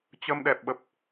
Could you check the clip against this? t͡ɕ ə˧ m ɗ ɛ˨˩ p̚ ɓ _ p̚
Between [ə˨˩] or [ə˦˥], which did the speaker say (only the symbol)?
ə˨˩